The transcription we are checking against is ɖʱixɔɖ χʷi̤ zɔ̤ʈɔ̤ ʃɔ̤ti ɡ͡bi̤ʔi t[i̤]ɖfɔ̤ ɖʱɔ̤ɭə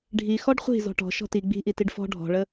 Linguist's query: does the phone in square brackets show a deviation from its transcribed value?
yes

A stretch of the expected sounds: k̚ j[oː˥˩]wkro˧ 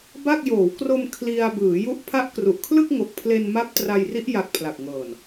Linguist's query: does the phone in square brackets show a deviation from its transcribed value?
yes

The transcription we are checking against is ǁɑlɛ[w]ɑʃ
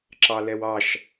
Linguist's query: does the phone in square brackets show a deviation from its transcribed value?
no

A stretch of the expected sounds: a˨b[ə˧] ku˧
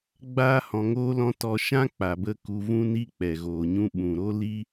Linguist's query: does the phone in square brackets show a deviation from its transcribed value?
no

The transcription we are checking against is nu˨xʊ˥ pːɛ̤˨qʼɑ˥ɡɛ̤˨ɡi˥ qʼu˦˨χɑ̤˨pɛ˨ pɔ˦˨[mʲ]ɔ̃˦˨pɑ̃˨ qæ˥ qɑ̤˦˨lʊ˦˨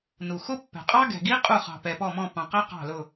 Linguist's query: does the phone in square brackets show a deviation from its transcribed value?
yes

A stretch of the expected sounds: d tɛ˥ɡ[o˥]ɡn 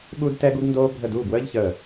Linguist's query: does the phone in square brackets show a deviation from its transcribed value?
yes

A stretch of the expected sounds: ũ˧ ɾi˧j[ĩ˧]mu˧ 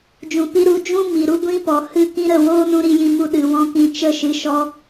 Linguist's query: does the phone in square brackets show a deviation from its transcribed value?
no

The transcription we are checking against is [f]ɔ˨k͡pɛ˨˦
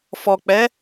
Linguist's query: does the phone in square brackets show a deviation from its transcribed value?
no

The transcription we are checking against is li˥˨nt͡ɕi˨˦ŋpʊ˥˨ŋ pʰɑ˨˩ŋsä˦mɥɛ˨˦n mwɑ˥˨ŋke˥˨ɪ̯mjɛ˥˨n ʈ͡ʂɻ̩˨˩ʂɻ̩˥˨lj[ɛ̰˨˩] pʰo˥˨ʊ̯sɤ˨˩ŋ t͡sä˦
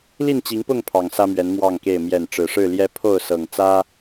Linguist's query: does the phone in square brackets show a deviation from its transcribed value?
yes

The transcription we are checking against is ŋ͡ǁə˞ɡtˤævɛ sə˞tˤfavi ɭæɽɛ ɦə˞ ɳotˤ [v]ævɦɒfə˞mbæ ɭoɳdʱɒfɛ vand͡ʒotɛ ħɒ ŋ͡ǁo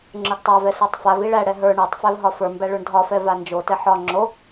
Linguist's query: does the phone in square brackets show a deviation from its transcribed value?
yes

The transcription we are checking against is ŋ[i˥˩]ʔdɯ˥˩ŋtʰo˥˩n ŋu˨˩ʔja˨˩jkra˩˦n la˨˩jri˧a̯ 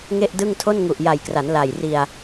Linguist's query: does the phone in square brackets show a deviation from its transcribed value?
yes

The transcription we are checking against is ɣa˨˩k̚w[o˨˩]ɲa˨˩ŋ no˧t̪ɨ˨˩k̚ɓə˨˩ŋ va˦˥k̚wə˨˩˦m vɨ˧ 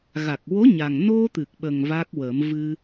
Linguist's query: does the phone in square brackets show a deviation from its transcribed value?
yes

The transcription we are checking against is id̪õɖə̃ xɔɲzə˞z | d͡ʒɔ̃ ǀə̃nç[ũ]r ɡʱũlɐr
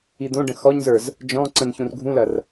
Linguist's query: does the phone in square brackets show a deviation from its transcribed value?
no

